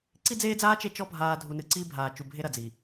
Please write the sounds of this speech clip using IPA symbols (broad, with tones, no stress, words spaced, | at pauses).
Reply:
ǀi˦d͡zeː˦d͡zaː˦ t͡ʃe˦t͡ʃɔ˦ bʱaː˨ dʱu˨nɨ˨ ǀiː˦bʱaː˨t͡ʃu˨bʱe˦ ɾɐ˨d͡zi˨